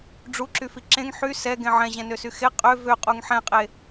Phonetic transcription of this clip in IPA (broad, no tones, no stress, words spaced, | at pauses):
ɖ͡ʐuǁyfi ǁẽŋ ħy sɛɡẽ ʕɛ̃ʑɛ̃nøsy xe qʼø vøqʼuŋ ħɛ̃qʼe